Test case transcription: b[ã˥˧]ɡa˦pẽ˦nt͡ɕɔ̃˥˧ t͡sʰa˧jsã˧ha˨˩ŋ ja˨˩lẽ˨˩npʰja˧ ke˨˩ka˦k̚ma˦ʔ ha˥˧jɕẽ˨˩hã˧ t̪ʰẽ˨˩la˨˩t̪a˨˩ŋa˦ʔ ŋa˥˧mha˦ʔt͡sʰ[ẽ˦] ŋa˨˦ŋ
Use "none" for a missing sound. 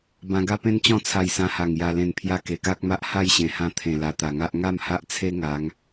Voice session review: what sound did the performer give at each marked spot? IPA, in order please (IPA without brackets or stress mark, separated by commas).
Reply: ã˧, e˦